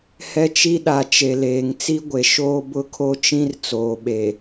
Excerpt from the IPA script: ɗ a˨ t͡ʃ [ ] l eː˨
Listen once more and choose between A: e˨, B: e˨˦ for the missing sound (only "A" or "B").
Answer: A